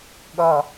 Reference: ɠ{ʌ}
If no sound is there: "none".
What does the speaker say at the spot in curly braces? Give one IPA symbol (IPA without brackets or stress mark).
ʌ